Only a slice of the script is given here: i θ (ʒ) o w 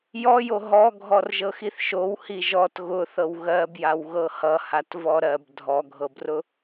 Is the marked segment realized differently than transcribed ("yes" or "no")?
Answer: yes